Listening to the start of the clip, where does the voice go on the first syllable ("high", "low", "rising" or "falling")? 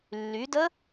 rising